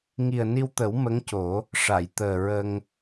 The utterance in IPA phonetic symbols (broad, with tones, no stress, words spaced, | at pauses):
ŋi˨˩ə̯ni˧wt̪ə˨˩˦w mə˧˥ŋco˨˩˦ | ʂa˨˩˨jt̪əː˨˩ɹə˧ŋ